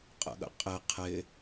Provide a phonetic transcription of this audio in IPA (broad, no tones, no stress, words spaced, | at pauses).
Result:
qʼə̰ɠə̰ qʼɪ qʰɪ